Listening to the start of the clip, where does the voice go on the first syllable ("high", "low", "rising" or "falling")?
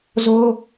high